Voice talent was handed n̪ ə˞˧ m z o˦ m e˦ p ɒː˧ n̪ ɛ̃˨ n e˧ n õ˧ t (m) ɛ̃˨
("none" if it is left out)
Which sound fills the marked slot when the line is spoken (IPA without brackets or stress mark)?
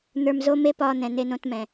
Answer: m